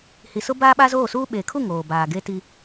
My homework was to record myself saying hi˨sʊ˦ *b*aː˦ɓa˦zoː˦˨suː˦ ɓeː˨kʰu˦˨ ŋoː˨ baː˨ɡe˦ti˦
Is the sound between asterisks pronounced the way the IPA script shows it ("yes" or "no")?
yes